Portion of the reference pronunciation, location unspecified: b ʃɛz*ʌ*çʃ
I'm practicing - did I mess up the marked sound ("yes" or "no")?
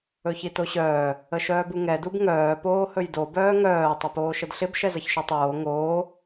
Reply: no